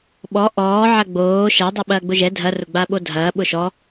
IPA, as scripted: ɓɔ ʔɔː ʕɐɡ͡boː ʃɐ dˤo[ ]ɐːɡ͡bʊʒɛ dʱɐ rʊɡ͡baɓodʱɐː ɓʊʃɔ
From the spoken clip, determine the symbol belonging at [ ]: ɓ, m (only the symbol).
ɓ